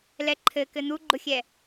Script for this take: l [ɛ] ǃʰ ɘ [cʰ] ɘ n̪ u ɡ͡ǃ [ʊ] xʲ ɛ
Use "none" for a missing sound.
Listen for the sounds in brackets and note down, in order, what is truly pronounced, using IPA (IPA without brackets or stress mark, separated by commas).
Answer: ɛ, k, ʊ